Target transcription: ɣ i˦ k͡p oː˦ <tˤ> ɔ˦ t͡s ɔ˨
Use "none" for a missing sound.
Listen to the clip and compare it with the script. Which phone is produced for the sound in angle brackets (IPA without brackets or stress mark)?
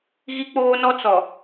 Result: n